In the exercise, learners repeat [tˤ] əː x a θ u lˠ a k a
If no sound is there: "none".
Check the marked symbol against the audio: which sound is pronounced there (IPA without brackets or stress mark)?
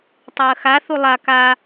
tˤ